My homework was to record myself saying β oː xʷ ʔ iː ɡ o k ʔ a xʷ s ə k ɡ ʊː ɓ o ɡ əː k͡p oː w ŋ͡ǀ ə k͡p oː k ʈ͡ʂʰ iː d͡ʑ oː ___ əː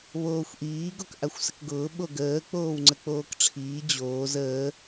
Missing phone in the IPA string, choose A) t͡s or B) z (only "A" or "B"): B